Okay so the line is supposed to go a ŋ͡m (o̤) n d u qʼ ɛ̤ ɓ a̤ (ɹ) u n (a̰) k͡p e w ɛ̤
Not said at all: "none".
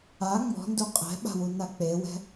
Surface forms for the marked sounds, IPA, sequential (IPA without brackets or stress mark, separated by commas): ɔ̤, w, a